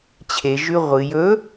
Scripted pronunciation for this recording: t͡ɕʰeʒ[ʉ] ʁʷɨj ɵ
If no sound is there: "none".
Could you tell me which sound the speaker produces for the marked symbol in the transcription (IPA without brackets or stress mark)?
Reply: ʉ